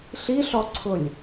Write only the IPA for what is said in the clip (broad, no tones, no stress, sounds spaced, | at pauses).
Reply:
ɬ i ɬ ɔ ǀʰ ʊ lʲ